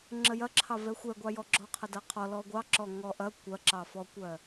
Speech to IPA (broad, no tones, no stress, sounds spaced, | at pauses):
ŋ͡ǁ ə j ɐ ǁʰ ɑ v ɛ xʷ ɛ ɡʷ ɑ j ɔ ɡ͡ǁ ɔ qʰ ɐ d ɐ qʰ ɔ l ɔ ɡʷ ɑ ǁ ɔ ŋ ɔ ʔ ɐ kʷ ɐ ǁ ɑ f ɔ kʷ ɜ